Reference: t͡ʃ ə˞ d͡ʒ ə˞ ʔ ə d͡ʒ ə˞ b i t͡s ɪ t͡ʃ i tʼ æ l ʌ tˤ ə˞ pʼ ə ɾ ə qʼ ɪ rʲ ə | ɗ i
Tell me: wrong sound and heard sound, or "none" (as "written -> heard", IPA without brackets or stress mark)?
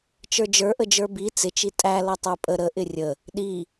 qʼ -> ʔ